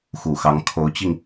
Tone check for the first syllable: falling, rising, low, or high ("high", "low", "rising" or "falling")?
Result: low